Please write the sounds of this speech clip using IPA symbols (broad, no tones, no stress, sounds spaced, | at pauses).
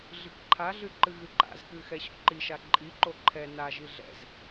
ɮ ɨ k ǃʰ a ɮ ɨ ǃ ɨ ɣ ɨ ǃ a̰ z k ɨ x ɛ ɕ ɔ̰ ǃ i ʃ a ǃʼ i ǃ o ǃʰ ɛ n a ʒ i ɮ ɛ̰ z